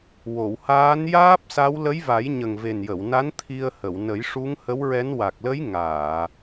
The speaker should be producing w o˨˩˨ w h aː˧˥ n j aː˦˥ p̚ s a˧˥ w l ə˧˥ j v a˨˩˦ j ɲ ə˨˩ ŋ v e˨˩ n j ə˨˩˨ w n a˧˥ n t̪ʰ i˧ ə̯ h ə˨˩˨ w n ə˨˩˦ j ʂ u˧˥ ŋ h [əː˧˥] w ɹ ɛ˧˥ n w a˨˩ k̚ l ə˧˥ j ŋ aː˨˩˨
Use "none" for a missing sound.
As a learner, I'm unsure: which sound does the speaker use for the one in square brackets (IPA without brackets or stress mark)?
ə˧˥